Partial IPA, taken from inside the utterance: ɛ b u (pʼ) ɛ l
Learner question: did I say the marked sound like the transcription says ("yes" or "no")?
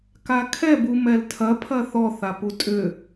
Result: no